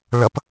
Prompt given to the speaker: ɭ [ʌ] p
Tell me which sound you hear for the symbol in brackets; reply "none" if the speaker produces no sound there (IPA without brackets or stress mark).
ʌ